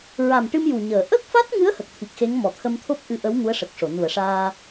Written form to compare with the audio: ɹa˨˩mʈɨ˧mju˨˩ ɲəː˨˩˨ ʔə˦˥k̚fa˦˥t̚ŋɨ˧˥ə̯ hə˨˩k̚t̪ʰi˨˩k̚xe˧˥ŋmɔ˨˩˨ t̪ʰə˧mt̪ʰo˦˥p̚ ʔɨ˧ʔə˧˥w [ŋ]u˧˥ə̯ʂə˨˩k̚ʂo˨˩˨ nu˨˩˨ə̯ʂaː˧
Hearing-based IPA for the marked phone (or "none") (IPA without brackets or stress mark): ŋ